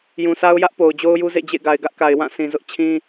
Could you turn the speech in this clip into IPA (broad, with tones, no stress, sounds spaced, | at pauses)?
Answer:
j ũ˨ s a˦ ʊ̯ j ä˦ ʔ p o˨ ʊ̯ d͡ʑ o˦ ʊ̯ j u˦ z ḛ˦˨ d͡ʑ ḛ˦˨ ɡ a˨ ɪ̯ ɡ ä˦ ʔ k a˨ ɪ̯ w ã˦˨ sʰ ĩ˨ z ʊ˦ ʔ t͡ɕʰ ĩ˦